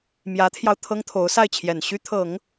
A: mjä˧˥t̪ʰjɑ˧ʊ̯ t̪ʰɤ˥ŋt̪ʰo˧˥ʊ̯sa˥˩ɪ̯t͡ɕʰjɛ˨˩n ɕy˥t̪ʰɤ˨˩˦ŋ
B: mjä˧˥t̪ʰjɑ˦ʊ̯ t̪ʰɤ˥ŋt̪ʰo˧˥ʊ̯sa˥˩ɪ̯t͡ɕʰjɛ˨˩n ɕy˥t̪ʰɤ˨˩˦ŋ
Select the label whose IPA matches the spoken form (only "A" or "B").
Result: A